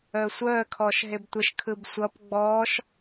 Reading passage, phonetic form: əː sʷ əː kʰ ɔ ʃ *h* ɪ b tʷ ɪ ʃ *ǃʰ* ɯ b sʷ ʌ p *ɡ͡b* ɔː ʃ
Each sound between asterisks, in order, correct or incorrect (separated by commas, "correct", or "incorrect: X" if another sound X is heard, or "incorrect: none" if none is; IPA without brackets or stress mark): incorrect: ɦ, incorrect: kʰ, correct